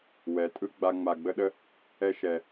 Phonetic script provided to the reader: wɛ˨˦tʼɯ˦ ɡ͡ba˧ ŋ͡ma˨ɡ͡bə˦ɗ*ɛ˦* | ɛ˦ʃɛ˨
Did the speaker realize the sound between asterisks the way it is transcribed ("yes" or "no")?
no